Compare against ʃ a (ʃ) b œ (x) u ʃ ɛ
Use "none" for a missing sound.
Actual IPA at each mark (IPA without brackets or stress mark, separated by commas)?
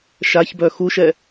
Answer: ç, x